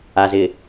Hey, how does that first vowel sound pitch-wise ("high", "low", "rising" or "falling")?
low